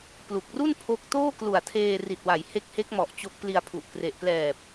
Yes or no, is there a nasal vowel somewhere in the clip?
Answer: no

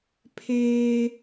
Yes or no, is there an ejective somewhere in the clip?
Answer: no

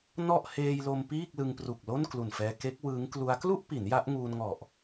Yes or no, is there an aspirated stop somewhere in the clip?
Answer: no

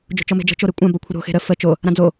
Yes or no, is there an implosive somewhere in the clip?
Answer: no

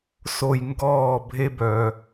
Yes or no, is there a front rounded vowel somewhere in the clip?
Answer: yes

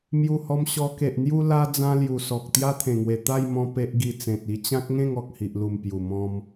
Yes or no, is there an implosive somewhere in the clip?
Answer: no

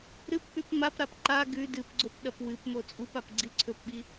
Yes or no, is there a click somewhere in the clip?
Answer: yes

